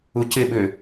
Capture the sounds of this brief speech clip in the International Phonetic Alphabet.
u c ɪ ɓ ʏː

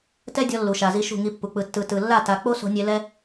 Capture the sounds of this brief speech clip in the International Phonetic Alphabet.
t ɛ˦ dʲ ɔ˧ lː u˨ ʃ a˨ z i˧ ʃ ṳ˦˨ ŋ i˧ pː u˨ k͡p ɯ˨ tː ɯ˨ t ɯ˨ lː a˦˨ t a˧ k͡p o˦ s o̤˧ nʲ e˧ l ɛ˦

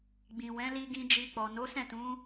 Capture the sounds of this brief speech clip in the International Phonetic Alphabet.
ɡ͡b ĩ˨ w ɛ̃˨˦ l i˧ ɡ ĩ˧ d͡ʒ i˧ k͡p ɔ˨ n o˨˦ s ɛ̃˦˨ t ũ˨˦

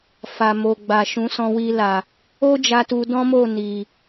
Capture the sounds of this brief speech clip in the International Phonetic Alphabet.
f a˨ m o˨ ɡ͡b a˨ ʃ ũ˨˦ s ɔ̃˧ w i˧ l a˨ | o˦ d͡ʒ a˧ t u˧ d ɔ̃˦ m o˦˨ n i˨

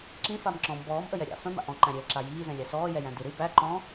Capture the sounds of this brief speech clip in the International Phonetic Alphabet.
ǁ ĩ f a m ǁ ɔ̃ m b ɔː m ʔ ə j ɛ ɾʲ a̰ f œ̃ m a̰ ʔ ɔ̃ ǃ æ̃ ɾʲ ɘː l ǁ a j iː z ɛ̃ lʲ æ s ɔː j ɛ j æ̃ d ɨ ɾ ɨ b æ ǃ ɔ̃

